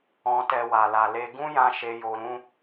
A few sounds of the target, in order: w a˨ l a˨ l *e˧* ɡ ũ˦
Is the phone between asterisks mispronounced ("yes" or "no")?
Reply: no